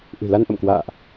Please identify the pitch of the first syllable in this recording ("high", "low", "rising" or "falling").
low